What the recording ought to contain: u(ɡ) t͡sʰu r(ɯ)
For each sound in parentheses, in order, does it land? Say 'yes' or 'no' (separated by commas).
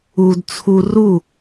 no, no